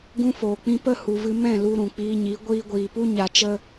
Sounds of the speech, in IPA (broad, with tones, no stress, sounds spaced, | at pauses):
ɡ ũ˧ f oː˨ k͡p ĩ˧ p ə˦˨ h u˧ v ɨ˦ m ɛ̃˦˨ l u˧ ɾ ũ˨ k͡p iː˧ ɲ i˨˦ ɡʷ iː˧ ɡʷ iː˨ p u˦ ɲ a˧ t͡ʃ ə˦